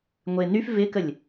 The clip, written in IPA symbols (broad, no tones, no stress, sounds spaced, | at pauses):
ŋʷ e n y f v ɪ k ə lʲ